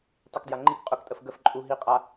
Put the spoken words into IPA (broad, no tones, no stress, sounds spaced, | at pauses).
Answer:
tˤ i k d j a ŋ͡ǃ i k qʼ ʊ k tʼ ə f ɡ ə f ǃʼ u ɦ i qʼ a